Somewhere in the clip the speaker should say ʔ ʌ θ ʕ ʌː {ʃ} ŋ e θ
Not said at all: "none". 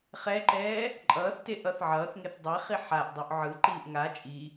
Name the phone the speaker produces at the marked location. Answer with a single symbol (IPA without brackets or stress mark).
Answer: θ